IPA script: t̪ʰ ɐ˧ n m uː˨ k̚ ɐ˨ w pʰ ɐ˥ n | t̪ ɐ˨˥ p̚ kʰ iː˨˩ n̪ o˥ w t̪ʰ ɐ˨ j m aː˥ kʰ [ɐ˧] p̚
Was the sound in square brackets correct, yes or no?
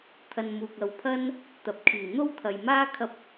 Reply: yes